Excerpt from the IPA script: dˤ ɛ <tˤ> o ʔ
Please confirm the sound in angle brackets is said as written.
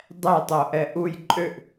yes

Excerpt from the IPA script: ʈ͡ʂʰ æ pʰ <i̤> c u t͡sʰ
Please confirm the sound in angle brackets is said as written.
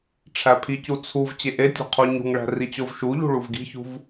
no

